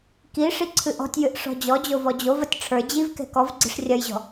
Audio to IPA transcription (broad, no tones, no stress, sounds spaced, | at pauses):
k i ʂ i ǀʰ ɨ ʔ ɔ̤ tʲ j ɨ ʔ ʂ ɔ̤ d͡ʑ ɔ d͡ʑ o v ɔ d͡ʑ o v ɐ tʲ ʈ͡ʂʰ ə˞ d͡ʑ i v k ɛ̤ k ɔ v ɡ͡ǀ i̤ ʂ rʲ ɐ j ʑ ɔ̤